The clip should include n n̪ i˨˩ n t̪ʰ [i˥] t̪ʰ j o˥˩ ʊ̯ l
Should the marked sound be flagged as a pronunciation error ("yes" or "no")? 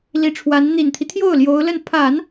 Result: yes